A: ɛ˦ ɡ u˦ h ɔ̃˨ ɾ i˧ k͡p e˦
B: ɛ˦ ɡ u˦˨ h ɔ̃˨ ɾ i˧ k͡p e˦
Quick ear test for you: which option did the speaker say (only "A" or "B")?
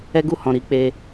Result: B